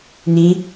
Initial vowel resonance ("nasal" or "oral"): nasal